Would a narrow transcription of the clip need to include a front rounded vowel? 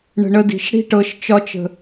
no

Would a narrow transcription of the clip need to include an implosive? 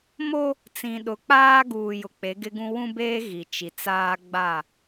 yes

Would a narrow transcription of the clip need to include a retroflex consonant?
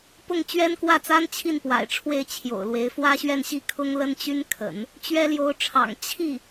yes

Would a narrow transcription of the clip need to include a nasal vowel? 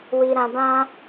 yes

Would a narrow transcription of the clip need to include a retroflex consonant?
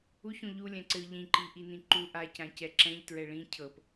yes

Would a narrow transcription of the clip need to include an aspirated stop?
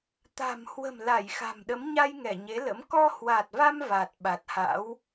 no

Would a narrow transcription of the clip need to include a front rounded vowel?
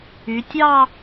yes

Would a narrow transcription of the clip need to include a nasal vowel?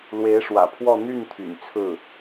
no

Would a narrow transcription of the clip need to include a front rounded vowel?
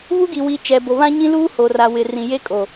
no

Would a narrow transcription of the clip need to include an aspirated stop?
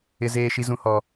no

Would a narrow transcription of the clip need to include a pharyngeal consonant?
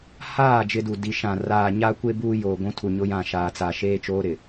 no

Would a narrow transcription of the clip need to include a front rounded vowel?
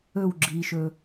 no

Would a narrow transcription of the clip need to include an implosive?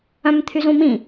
no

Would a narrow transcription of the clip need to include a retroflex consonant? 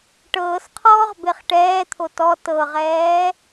yes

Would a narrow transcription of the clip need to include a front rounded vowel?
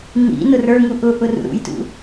no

